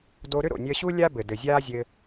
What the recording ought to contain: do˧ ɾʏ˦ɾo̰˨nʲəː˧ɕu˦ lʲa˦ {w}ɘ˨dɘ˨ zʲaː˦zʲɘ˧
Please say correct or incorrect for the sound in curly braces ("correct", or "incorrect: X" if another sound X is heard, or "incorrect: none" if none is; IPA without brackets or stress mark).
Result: incorrect: b